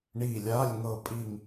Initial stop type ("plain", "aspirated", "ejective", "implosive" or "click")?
ejective